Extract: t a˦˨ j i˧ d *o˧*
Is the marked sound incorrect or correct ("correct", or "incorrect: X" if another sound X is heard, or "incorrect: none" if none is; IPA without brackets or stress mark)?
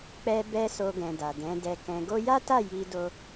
correct